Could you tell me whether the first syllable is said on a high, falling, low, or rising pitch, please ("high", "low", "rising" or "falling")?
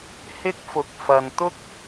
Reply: high